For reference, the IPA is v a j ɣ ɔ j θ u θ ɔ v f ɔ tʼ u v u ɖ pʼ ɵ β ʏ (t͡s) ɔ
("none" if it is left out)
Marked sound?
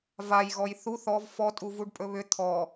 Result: t̪ʰ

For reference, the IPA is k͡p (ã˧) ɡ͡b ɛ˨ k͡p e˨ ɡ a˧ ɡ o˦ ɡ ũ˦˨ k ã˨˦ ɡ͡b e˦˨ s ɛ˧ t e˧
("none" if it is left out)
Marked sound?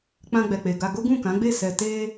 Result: ã˧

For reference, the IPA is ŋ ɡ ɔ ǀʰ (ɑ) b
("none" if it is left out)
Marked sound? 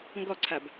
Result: a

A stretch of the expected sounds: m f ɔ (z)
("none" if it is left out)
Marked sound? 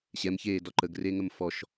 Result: ʃ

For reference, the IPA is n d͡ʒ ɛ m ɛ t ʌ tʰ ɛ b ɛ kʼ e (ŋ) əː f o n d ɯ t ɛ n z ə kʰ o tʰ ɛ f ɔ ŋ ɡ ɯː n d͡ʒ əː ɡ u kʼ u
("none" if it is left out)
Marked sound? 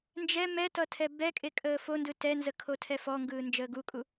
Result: kʼ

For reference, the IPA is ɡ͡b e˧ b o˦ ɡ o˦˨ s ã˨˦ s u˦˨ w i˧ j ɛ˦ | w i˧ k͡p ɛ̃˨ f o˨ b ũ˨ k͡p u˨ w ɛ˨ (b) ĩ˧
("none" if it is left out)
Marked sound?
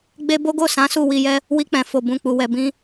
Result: b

